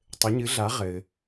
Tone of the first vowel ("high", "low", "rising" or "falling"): rising